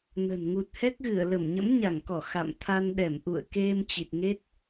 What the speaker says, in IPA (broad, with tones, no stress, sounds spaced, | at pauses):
n ə̤˨˩ n ŋ u˨˩ t̚ h ɛ˦˥ k̚ ɣ ɨ˧˩ ə̯ l ə˧˩ m ɲ ə̰˧˥ m ɲ a˧˩ ŋ k ɔ˧˩ x a̰˧˨ m t̪ʰ a˧ n ɗ ɛ˧˩ m ʔ ṵ˧˨ ə̯ k e˧ m t͡ɕ i˨˩ t̚ ŋ e˦˥ t̚